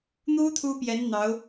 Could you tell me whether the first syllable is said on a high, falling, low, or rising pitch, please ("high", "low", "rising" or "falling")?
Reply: high